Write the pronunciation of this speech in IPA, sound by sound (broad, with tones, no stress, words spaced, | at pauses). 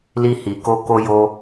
li˧hi˨ko˧ ko˧jo˧